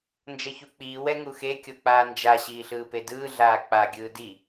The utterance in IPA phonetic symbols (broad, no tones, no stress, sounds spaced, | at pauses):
n d͡ʒ ʌ ç u k͡p iː w ɛ ŋ u x e kʲ o k͡p aː n d͡ʒ a ɕ iː ɬ ɯː p e d ɯː ɮ aː k͡p a ɡʲ ɯː d i